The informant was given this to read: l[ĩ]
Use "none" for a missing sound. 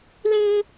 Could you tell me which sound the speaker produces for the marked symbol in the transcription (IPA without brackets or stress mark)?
ĩ